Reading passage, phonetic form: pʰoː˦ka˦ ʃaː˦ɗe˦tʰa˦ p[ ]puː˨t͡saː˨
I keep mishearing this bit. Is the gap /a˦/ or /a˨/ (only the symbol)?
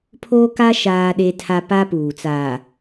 a˦